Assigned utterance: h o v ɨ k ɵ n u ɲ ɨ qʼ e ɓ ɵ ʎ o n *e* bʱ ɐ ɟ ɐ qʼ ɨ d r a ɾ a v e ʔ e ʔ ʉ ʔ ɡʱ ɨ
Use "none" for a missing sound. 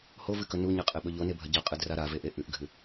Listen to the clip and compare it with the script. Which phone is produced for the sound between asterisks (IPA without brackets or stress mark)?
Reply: e